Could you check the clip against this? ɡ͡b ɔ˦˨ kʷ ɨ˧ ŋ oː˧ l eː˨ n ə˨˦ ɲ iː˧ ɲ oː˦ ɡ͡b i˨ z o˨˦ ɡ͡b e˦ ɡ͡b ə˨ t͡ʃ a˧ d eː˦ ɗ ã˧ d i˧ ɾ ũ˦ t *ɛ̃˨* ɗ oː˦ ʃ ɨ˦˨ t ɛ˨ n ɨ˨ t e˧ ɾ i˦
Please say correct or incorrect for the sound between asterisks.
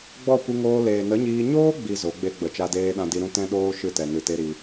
incorrect